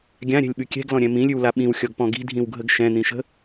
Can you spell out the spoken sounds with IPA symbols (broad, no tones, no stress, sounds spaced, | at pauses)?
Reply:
ɡʲ ã ɾʲ ɛ̤ lʲ ɓ ʉ kʲ ɛ̤ ɡ l ɔ̃ ɾʲ ɛ̃ m ĩ lʲ ʉ w l a ɓ ĩ w xʲ ɔ ɡ p ɔ̃ ɡ i̤ dʱ ĩ w ɡʱ ə ɡ ʃ ɛ̃ n̪ ĩ ʃ ə̤